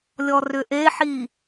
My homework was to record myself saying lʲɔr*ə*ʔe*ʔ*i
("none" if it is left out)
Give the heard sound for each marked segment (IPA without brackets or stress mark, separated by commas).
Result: ʏ, ħ